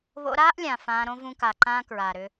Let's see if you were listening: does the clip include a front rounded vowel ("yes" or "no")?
yes